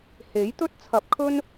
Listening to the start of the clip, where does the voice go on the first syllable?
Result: rising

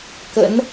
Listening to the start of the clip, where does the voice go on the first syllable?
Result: rising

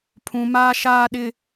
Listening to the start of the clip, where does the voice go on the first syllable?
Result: low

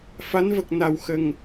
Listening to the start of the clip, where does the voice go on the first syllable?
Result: rising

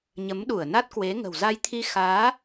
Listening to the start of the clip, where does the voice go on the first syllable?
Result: rising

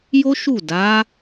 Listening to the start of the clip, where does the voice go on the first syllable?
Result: high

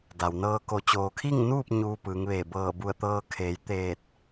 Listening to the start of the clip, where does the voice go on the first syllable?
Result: low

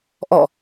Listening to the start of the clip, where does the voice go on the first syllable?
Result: falling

